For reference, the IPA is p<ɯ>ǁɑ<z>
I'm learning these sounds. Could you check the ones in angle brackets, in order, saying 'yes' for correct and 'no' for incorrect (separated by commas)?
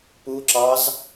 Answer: no, yes